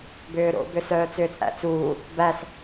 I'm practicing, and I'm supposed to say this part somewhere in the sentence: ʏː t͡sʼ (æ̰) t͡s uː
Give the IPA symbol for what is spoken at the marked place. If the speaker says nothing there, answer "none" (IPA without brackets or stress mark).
æ̰